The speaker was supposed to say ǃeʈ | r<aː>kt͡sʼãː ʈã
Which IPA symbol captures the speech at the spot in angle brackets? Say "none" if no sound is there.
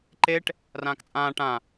ãː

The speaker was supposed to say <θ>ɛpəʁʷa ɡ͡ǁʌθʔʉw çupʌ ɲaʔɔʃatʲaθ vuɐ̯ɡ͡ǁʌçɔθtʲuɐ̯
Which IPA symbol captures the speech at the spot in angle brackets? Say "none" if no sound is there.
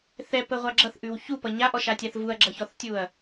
θ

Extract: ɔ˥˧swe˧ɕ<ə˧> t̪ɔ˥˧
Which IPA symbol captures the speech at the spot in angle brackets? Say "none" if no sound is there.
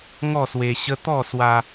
ə˦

